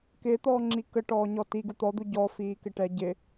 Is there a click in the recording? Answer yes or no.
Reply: yes